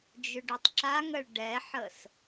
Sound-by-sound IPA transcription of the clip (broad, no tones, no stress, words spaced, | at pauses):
d͡ʒʏɖʏtˤǁaŋəɭ ɖɛħəs